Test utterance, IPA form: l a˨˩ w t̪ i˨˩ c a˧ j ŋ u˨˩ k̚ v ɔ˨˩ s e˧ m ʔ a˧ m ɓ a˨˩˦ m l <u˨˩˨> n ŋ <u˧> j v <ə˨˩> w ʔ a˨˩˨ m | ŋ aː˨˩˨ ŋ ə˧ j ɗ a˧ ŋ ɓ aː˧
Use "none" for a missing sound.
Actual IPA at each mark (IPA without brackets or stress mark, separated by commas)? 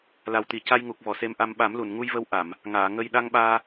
u˨˩˨, u˧, ə˧